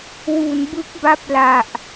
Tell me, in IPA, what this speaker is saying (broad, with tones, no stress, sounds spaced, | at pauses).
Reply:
w u˩˦ n b ɯ˦˥ k̚ b a˦˥ p̚ l a˨˩ ʔ